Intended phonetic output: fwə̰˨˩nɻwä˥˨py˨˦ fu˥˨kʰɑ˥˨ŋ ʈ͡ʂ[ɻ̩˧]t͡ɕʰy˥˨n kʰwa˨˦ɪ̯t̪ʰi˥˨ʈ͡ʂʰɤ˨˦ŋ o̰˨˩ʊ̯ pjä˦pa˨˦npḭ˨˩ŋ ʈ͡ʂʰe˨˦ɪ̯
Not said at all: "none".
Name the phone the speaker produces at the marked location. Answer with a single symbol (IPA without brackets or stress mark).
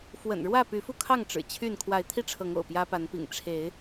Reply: ɻ̩˨˩